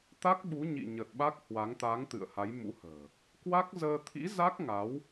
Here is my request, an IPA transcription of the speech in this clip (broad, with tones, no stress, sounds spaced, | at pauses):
t̪ a˦˥ k̚ ɓ u˨˦ ɲ ḭ˧˨ ɲ ə˨˩ t̚ ɓ a˦˥ k̚ h w a˨˦ ŋ t̪ a˨˦ ŋ t̪ ɨ̰˧˨ ə̯ h a˨˦ j m ṵ˧˥ h ə̤ː˨˩ | k w a˦˥ k̚ z əː˧ t̪ʰ ḭ˧˥ z a˦˥ k̚ ŋ a˨˦ w